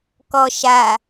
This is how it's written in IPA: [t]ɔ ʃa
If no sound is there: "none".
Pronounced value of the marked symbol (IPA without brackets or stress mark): k